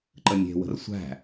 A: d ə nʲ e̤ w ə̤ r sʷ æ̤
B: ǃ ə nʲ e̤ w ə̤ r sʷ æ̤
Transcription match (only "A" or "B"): B